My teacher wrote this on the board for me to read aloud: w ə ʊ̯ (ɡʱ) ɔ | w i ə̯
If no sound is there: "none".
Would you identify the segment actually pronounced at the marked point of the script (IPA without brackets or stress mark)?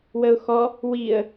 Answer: x